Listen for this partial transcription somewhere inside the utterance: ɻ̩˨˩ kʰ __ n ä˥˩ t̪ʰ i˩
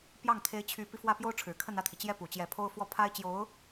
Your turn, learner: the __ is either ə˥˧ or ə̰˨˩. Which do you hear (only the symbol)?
ə˥˧